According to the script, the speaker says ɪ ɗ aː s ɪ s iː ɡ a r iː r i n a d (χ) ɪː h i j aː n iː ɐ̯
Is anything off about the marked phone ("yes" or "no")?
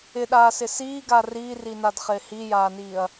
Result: no